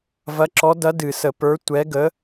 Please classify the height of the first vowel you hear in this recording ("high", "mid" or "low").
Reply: low